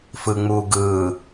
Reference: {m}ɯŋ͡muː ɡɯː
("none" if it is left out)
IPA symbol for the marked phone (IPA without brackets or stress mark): f